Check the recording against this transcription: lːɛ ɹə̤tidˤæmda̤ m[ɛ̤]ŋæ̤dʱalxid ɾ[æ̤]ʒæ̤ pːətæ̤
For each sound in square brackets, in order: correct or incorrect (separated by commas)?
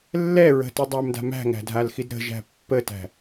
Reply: incorrect, incorrect